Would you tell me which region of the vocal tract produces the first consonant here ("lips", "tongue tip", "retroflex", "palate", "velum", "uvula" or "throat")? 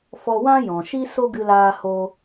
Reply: lips